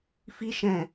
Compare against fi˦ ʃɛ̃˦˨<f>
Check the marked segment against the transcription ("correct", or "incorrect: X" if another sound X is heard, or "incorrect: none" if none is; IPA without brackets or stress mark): incorrect: none